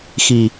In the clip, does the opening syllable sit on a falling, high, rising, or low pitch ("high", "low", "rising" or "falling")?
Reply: low